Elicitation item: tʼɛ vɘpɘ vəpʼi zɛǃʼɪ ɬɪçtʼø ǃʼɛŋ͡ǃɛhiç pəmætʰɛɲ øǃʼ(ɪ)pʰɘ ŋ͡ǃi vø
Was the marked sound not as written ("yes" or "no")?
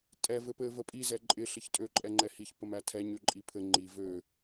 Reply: yes